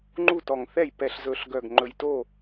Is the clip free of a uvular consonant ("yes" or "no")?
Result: yes